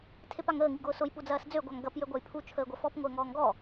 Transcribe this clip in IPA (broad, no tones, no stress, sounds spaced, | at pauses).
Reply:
tʰ e p a ŋ əː ŋ i ɡ ʊː s ʊ j p u d͡z ɐː s d͡z ø ɡʷ a ŋ ɡ ɐ p j ø ɡʷ a j pʰ u t͡ʃʰ əː ɡʷ ɐ f ɔ p ŋʷ əː ŋ ɔː ŋ ɡ ɔ